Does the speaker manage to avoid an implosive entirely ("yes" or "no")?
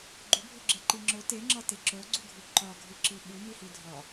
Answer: no